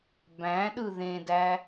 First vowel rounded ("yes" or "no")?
no